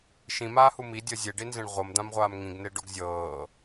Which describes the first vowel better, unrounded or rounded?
unrounded